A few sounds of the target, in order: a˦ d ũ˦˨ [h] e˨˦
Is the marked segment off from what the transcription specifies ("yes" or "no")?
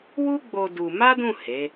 no